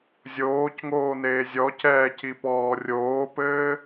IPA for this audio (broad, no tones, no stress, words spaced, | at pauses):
zʲoːcŋoːneː zʲɔc ɛːcipɔː rʲoːpɘː